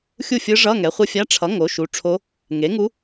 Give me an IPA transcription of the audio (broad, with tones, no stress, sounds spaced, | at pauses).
xʲ u˥˩ fʲ ɯ˧˥ ʐ ʌ˧˥˧ ŋ ɛ˩˥ χʷ ɯ˧˥ fʲ a˧˥˧ ʈ͡ʂʰ ʌ˩˥ ŋ o˩˥ ʃ u˩˥ ʈ͡ʂʰ o˧˥ | ŋ e˩˥ ŋ u˧˥